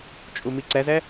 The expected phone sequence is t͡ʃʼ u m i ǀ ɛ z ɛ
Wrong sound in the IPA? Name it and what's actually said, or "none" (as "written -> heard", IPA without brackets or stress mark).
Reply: none